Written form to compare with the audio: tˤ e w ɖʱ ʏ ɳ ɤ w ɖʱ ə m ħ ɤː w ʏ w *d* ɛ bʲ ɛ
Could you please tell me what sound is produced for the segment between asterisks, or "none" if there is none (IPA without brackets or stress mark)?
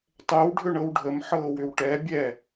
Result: ʈ